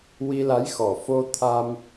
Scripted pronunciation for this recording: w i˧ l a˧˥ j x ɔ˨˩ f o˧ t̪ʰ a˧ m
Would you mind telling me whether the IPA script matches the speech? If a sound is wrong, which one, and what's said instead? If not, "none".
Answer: none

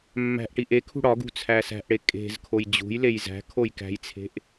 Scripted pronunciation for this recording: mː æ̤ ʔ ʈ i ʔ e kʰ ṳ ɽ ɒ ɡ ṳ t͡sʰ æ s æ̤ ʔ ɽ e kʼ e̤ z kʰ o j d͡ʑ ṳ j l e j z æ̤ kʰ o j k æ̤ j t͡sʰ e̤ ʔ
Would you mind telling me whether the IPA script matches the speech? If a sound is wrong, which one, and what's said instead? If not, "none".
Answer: none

